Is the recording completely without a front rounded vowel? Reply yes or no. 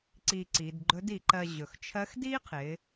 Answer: yes